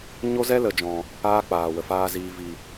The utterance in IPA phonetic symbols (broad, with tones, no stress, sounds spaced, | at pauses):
ɲ o˦ z ɛ˦ l ə˨ d͡ʒ ɔ̃˨ | aː˦ k͡p aː˨ w ə˨ f aː˧ z iː˨ v i˨